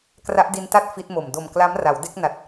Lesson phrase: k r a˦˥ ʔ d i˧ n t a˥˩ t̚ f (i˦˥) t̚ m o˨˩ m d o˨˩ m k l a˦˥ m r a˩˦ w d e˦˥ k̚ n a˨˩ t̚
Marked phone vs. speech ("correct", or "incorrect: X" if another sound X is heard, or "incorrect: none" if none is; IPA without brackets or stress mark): correct